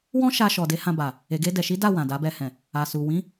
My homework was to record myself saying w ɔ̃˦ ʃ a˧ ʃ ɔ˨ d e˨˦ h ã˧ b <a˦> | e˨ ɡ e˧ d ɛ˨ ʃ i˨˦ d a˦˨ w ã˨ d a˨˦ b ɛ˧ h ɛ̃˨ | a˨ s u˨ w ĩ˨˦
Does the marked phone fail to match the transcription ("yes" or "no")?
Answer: yes